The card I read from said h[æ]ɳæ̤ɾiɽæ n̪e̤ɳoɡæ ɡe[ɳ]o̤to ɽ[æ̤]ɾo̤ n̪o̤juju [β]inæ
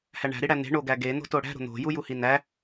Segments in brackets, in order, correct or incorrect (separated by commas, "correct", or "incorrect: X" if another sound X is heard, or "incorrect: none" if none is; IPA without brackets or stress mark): correct, incorrect: n̪, correct, incorrect: h